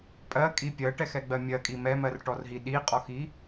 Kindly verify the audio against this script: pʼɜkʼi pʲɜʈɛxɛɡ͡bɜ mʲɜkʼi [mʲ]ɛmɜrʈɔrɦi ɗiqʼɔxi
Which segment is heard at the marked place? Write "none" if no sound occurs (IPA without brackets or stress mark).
m